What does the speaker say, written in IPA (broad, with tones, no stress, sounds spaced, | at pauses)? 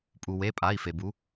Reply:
pʼ u˩ w e˩˧˩ pʼ a˩˧˩ i̯ f e˩ b u˩˧